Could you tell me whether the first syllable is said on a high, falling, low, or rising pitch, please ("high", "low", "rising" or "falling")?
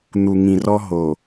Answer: low